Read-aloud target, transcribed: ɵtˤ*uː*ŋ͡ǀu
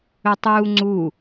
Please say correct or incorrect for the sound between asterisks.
correct